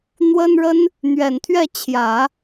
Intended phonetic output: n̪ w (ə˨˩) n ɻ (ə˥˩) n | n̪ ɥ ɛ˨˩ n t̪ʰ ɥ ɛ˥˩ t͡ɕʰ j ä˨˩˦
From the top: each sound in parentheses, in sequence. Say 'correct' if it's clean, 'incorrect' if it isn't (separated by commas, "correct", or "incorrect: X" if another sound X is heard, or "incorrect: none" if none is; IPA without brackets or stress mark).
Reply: incorrect: ə˥, incorrect: ə˥